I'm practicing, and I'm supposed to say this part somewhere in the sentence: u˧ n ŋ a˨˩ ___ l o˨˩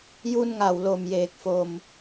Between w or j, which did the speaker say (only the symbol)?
w